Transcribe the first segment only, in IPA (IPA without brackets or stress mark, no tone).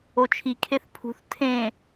o